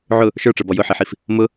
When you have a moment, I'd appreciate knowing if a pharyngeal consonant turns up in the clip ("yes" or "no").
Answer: yes